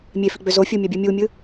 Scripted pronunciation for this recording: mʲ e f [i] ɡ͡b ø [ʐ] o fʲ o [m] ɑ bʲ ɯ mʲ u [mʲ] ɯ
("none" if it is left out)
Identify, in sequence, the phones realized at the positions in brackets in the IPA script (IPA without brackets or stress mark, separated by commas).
i, z, mʲ, mʲ